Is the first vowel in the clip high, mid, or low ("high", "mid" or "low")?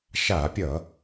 low